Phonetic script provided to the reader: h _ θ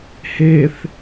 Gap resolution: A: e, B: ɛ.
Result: A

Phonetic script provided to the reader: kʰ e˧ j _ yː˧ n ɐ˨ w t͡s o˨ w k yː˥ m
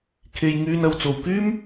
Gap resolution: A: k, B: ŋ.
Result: B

